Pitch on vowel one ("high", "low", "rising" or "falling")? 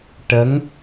rising